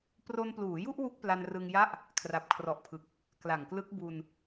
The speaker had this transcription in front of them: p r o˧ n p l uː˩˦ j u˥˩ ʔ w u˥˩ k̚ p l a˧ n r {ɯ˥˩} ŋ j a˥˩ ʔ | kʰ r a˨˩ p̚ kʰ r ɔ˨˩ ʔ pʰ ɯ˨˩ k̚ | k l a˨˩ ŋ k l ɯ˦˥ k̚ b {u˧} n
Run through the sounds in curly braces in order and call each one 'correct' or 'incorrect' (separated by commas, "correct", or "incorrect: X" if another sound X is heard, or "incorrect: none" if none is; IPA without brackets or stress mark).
incorrect: ɯ˧, correct